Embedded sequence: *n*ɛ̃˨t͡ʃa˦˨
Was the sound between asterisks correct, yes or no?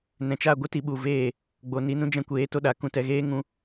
yes